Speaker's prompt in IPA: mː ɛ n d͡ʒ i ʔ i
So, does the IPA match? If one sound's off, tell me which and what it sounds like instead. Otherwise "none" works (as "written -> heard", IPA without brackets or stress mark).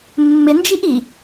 ɛ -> ɪ